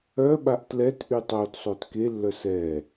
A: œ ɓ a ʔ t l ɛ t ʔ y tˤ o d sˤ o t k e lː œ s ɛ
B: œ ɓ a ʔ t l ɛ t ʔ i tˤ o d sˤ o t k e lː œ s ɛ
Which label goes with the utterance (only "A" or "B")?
A